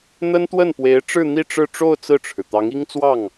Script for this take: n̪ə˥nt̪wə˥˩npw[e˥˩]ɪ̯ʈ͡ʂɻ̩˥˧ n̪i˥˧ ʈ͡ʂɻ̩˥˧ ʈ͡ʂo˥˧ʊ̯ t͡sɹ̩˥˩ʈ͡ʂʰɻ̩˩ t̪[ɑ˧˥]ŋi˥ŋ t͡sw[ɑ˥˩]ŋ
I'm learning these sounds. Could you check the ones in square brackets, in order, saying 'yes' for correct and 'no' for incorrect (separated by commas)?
no, yes, yes